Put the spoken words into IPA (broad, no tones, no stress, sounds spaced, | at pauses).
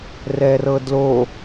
r ɛ r ɤ d l o